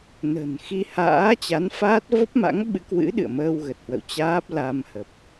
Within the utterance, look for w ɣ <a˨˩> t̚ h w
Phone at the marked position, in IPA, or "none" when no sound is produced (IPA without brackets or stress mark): ə˨˩